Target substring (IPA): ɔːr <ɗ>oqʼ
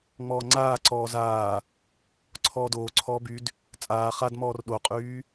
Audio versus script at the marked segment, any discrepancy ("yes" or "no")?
no